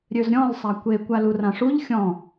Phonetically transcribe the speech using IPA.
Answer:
ɾʲ ø z ɾʲ ɔ̃ l sˤ a kʷ e kʷ a l u r ã ʂ u ʎ xʲ ɔ̃

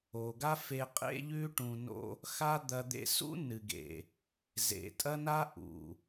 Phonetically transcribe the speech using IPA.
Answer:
o˨ ɡ a˦ f e˧ qʼ ḛ˦ ʎ ʉ˦ ʈ ũ˧ n o̰˦ | x a˦ d̪ ɐ˧ d̪ ḛ˧ s ṵ˦ n ɨ˨ ɡ ḛ˨ | z ḛ˨ tʼ ɐ˦ n a˦ ʔ ṵ˨

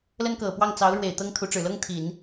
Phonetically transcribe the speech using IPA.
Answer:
l ə˥ n k ɤ˨˩ p w ɑ˥˩ ŋ t͡s ɑ˧˥ ʊ̯ ɻ w e˨˩ ɪ̯ t̪ ɤ˥ ŋ t̪ʰ u˧˥ ʈ͡ʂ ɻ̩˨˩ l ɤ˥ ŋ t̪ʰ i˨˩˦ n

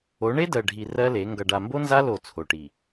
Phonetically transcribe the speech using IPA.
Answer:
o˨˦ ɳ e˦ d ɜ˨ ɖʱ i˨ r ɜ˦ l e˨˦ ŋ ɡ ʌ˨ ɖ a˨ m b o˦ n z a˦ l o˦˨ t͡sʰ o˨ ʈ i˨

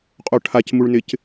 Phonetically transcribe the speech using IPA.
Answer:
qʼ o ʈʰ a c m u ɭ n ɪ c

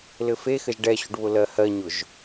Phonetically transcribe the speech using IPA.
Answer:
l ɘ f e x ɘ ʒ ɖ ɛ ɕ ʊ ɖ β ʊ l ɜ h ɜ ɲ ʊ ʒ

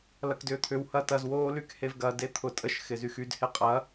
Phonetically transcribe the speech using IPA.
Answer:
l ɐ k d ʏː t̪ʰ ʏ w h ɐ t ɐ z w oː l y k h e v ɡ ɐ d e t̪ʰ ʊ tʼ ə ʃ x ɪ z y x y d h e qʼ ɐ

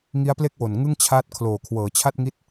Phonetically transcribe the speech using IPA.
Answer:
ŋ i˦˥ a̯ p l e˥˩ k̚ w o˨˩ n ŋ ɯ˥˩ ŋ t͡ɕʰ aː˦˥ t̚ kʰ l oː˨˩ kʰ w ɤː˩˦ t͡ɕʰ a˥˩ t̚ ŋ i˦˥ t̚

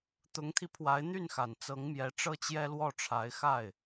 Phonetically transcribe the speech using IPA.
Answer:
t̪ ʊ˧˥ ŋ t̪ʰ i˧ pʰ w a˧˥ ɪ̯ n̪ y˥˩ n x a˨˩ n t͡s ɤ˧˥ ŋ m j ɛ˧˥ ʈ͡ʂ ɤ˥˩ t͡ɕ j ɛ˥ l w ɔ˥˩ ʈ͡ʂʰ a˧˥ ɪ̯ x a˥˩ ɪ̯

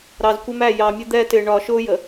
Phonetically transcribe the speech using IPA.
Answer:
ɾ ɑ˨ z kʷ ɪ˦ m æ˦˨ j ɑ˨ mʲ ə˦ d̪ ɛ˦ t ɪ˨ ɳ ɒ˨ ʃ ʊ˦ j ə˨

